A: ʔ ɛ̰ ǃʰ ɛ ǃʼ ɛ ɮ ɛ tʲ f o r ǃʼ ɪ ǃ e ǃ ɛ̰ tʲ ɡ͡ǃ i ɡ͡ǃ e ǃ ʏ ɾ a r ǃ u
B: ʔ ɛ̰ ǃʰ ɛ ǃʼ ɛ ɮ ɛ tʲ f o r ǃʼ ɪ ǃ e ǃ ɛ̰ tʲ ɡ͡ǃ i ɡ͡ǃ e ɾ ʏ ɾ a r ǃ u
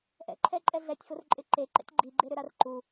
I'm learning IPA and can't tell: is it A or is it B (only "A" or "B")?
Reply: B